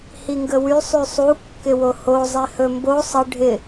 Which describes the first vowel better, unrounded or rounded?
unrounded